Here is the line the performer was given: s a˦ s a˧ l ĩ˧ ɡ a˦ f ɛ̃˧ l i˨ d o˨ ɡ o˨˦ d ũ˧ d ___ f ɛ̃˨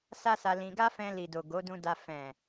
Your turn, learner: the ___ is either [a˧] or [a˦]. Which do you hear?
a˧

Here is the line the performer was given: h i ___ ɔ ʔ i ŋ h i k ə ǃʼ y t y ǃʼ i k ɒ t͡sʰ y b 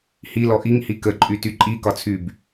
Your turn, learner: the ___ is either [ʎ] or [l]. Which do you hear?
l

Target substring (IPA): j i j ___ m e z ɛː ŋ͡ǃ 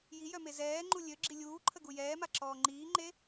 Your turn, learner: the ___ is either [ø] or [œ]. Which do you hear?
œ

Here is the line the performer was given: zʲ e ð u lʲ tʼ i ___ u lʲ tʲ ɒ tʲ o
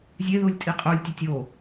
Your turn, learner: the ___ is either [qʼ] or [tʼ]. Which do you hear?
qʼ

